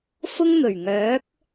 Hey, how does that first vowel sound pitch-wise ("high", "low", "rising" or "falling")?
high